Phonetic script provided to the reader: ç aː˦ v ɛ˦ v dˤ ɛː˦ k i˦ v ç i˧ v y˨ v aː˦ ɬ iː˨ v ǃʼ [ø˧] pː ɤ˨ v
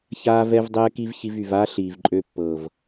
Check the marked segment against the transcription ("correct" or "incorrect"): correct